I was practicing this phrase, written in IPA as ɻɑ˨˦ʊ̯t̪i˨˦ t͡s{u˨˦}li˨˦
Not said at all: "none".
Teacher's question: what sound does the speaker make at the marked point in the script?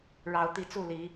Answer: u˥˨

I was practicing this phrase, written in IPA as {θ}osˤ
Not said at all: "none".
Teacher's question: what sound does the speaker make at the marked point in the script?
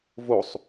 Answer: v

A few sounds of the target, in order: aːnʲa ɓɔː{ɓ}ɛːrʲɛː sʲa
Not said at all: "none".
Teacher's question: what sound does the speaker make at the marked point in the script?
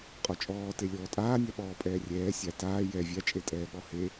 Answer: pʼ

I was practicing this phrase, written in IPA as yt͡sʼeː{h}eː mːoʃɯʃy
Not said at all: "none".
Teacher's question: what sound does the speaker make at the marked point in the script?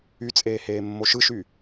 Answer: h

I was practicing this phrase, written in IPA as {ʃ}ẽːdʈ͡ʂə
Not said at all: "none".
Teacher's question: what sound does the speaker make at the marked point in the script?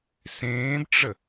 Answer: s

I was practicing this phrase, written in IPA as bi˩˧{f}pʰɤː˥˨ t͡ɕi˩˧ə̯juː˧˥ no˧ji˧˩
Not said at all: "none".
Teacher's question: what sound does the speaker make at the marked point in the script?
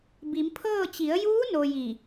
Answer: m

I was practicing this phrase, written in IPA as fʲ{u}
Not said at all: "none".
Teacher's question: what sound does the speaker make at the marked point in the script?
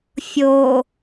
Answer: o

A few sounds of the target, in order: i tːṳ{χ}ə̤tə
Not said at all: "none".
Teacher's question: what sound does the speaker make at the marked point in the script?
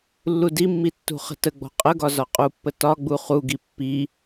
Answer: χ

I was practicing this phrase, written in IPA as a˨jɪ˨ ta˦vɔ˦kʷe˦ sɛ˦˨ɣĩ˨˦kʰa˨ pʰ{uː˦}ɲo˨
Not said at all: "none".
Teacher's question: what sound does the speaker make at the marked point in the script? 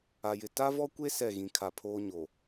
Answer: oː˦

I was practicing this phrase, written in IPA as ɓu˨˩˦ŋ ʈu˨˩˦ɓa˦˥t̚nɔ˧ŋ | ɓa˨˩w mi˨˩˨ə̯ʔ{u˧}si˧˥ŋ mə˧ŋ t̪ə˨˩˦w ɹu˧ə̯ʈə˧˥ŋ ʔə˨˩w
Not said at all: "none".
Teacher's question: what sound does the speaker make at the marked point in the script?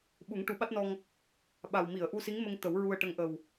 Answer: u˧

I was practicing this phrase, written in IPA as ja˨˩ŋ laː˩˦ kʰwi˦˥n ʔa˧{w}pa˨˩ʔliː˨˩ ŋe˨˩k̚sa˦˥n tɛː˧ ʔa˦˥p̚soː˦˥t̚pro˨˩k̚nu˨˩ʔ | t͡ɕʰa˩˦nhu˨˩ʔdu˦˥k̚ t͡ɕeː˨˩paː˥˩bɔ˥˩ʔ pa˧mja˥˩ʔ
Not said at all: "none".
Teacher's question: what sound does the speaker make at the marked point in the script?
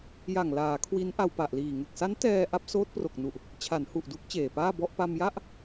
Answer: w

